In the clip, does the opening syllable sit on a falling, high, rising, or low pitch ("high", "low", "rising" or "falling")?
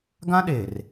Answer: high